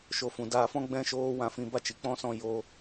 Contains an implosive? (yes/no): no